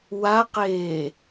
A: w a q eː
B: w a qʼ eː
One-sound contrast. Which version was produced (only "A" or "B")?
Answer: A